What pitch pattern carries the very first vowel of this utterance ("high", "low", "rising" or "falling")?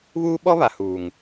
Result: high